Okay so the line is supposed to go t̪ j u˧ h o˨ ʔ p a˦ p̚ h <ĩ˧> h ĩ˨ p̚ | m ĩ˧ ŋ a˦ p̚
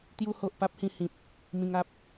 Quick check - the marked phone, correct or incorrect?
correct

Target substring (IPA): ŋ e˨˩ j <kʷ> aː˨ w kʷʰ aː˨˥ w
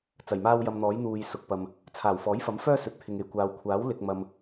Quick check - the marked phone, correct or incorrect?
correct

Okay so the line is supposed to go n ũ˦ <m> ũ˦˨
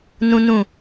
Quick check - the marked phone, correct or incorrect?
incorrect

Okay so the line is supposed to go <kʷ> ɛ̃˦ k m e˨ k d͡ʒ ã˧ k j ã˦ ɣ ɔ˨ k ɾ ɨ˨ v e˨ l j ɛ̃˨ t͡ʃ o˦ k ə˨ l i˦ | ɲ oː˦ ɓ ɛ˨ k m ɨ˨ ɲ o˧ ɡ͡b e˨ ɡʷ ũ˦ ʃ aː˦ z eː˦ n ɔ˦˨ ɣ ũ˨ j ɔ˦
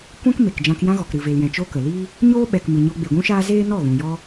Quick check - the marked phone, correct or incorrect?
correct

